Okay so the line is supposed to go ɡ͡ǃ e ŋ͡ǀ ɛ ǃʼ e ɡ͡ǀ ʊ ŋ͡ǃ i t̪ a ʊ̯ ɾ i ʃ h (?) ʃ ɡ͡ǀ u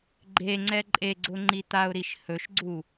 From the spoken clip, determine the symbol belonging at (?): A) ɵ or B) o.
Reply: A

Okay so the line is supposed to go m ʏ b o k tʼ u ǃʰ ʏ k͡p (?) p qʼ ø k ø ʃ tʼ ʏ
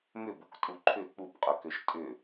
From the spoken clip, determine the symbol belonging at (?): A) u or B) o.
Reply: A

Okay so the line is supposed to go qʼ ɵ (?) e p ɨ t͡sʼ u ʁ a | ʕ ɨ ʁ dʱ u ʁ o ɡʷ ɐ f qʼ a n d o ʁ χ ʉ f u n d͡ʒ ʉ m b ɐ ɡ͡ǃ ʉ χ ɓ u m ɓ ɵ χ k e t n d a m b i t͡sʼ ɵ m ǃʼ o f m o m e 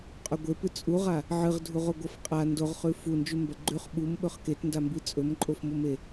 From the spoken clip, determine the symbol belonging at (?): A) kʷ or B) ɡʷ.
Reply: B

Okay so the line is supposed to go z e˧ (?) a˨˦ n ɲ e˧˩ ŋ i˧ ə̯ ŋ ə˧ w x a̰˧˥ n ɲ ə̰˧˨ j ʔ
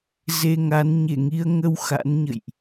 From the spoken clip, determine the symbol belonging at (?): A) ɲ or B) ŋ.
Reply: B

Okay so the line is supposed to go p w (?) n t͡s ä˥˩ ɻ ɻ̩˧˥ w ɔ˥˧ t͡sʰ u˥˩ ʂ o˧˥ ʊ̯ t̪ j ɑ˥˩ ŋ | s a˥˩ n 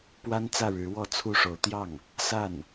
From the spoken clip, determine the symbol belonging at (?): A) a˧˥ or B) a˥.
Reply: B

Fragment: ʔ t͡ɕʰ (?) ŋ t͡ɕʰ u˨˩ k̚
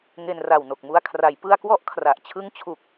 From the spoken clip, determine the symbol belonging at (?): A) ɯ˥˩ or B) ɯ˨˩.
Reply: A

